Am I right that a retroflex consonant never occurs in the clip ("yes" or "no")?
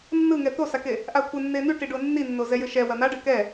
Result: no